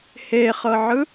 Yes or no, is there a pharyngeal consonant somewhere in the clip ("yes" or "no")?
yes